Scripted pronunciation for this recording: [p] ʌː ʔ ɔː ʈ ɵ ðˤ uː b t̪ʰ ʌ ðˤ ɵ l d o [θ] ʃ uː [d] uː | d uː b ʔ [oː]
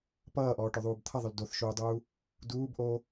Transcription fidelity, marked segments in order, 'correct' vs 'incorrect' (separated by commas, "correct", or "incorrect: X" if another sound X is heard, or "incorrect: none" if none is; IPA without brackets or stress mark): correct, correct, incorrect: dˤ, correct